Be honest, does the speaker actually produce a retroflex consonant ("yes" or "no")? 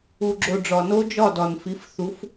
yes